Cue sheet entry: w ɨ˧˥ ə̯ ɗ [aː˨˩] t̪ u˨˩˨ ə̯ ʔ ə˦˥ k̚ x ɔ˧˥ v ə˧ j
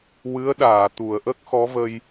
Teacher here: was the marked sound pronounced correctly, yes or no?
no